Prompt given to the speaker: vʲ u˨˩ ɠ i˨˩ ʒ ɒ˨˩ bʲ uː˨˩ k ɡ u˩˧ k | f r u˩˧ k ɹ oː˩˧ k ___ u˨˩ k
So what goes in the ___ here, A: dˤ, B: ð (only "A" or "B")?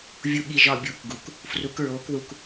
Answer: B